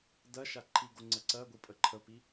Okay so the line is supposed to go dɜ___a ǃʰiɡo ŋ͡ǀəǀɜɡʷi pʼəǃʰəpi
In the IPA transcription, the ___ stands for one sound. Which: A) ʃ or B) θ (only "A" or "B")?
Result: A